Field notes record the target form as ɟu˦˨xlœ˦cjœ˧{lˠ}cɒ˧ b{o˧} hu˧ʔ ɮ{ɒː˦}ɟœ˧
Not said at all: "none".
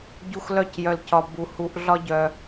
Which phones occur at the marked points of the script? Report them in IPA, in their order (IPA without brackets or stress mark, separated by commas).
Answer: l, u˧, ɒ˦